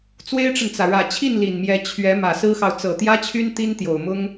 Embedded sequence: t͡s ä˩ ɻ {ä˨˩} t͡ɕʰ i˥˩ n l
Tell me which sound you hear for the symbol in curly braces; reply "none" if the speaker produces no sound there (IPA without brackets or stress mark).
ä˨˩